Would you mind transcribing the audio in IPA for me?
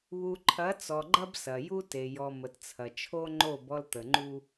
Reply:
β u˨ ǃʰ ɐ˨˦ t͡s ɔ˨ ɡ͡ǃ ɐ˦ b s ɐ˨ j u˦ t e˨ j ɔ˨ m ə˨ t t͡sʰ ɐ˨ t͡ʃʰ o˦ ŋ͡ǃ o˦˨ b ɔ˦ l t̪ ə˨ ŋ͡ǃ u˦

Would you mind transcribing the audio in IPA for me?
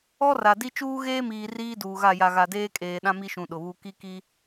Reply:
ɔ˦ r a˨ d i˦ t͡ʃ uː˦ ɣ eː˦ m iː˨ r iː˦ d uː˨ ɣ a˦˨ j a˨ ɣ a˨ d eː˦ kʼ eː˨ ɗ ã˦ m i˦ ʃ ũ˨ ɗ ʊ˨ β u˦ k i˦ k i˦

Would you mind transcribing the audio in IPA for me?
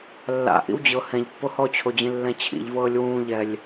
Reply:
lː a̰ ʔ ḭ w d͡ʑ ɤ h ɛ̃ ʎ pː o h ɔ t͡ɕʰ o d͡ʑ ĩ lː ɛ̃ t͡ɕʰ ḭ ʎ v ɤː lʲ w ũː ʎ ɛ lʲ

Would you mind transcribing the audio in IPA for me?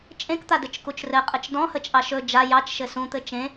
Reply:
t͡ʃʼ ẽ k t̪ a d ɘ t͡ʃ k u t͡ʃ r ɘ qʼ ɘ t͡ʃ d ɔ̃ h ə t͡ʃʼ ɑ ʃ ɵ d͡ʒ a j ɑ t͡ʃ ʃ ɘ s ũ t̪ ɘ t͡ʃ ẽ

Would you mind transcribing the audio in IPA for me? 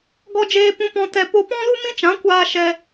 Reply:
ɡ ɔ˦ d͡ʒ eː˦ p ũ˧ p ɔ̃˧ t ɛ˧ p o˧ p ɔ̃˦ l u˦ m ĩ˦ t͡ʃ ã˨˦ kʷ aː˧ ʃ ɛ˧

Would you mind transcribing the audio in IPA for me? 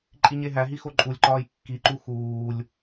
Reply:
ǃʼ i ɲ e ɦ æ ɦ i x o ǃʼ u lʲ ǃ ɒː j kː i ǃ u x uː lʲ

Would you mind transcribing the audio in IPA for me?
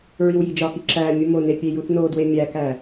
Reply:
ɹ i w j i d͡ʒ ɒ k i ǁ æ mʲ u m o n e pʲ e j u θ n o d w e mʲ æ k æ

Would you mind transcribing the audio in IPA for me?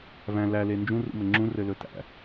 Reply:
v æ̃ l æ l e n d͡ʒ ũ r ṵ m ɘ ŋ͡ǁ ũ r ɘ l ɵ t æ̰

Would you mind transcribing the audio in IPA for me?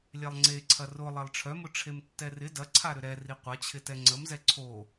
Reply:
lʲ ɛ lˠ ŋ͡ǀ e ǀʰ ɐ r ʊ lˠ ɛ lˠ ʈ͡ʂʰ œ m ʊ ʈ͡ʂʰ e m tː ɛ r ɪ d ɐ ǀʰ a ɾ ʏ ɾ ɛ r i qʷ ɐ t͡ɕʰ ɪ t ɛ ŋ͡ǀ ə m z ɛ ǀʰ o

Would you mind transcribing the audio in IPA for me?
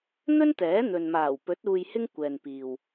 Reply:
n̪ ɵ˥ n t̪ ɛː˨˥ n̪ ɵ˨ n m aː˨˩ w p ɵ˨˥ t̚ uː˧ j h ɪ˥ ŋ kʷ ɛː˨ n p iː˨ w

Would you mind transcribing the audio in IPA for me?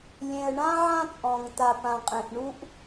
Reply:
lʲ ẽ˩ ə̯ ɳ ã˥ ʕ ã˥ t͡sʼ ɔ̃˩ ŋ t a˩ p ã˩ qʼ ẽ˩ ʔ ɳ u˥ ʔ

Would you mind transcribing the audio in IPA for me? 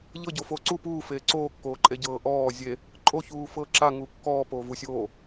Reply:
ʎ ɤ ɟ o f oː ǀ u p uː f eː ǀ oː kː oː ǃʼ e ɟ ɤː ʔ ɔː zʲ e | ǃʼ o ç uː f ɤː ǁ a ŋ u kː ɔː p oː v u sʲ oː

